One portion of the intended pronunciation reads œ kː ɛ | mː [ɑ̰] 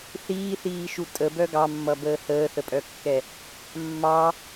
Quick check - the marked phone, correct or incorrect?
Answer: incorrect